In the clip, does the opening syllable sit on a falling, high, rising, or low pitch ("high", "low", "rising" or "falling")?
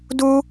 high